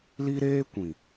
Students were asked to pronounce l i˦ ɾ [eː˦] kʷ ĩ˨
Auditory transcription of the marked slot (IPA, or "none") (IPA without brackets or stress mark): eː˦